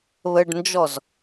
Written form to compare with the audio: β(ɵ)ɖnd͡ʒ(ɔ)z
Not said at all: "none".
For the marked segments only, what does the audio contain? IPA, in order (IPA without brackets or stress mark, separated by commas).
ə, ɔ